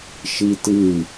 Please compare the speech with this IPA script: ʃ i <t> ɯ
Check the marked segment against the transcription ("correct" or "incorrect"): correct